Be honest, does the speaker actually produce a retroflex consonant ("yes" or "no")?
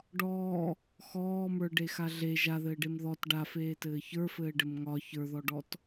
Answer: yes